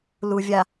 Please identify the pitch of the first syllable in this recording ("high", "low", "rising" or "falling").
low